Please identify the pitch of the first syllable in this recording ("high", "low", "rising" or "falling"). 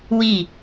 falling